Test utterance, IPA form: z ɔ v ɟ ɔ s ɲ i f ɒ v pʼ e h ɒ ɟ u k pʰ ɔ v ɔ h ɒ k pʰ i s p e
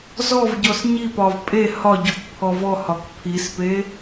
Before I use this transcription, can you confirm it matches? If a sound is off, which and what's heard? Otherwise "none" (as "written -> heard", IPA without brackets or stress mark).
f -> p